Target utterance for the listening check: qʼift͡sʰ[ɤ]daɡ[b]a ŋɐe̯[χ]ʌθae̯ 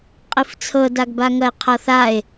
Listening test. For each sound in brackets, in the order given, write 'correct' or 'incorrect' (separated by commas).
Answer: correct, correct, incorrect